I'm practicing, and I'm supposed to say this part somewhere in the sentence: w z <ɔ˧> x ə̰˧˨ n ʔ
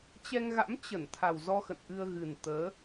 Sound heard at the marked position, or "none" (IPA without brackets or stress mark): ɔ˧